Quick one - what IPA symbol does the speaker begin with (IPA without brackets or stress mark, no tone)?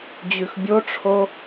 d͡ʑ